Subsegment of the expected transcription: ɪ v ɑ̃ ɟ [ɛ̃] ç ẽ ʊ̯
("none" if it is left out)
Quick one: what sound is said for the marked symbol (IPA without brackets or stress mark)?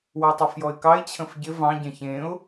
ɛ̃